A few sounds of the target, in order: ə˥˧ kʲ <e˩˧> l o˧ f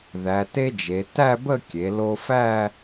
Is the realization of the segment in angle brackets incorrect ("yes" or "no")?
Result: no